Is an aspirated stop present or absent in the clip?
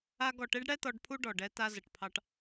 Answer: present